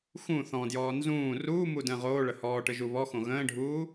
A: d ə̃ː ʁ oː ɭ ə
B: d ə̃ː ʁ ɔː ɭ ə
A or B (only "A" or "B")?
A